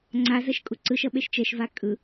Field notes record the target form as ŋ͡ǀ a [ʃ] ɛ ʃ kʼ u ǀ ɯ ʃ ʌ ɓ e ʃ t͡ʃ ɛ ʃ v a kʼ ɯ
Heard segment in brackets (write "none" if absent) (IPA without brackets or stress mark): z